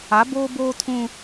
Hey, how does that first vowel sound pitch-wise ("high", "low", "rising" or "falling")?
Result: rising